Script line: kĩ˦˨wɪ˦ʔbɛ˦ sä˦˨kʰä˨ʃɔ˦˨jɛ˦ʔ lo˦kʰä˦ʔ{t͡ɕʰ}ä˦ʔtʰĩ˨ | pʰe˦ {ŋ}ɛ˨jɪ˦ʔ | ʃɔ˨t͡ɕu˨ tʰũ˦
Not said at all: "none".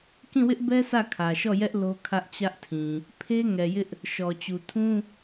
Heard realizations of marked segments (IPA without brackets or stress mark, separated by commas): t͡ɕ, ŋ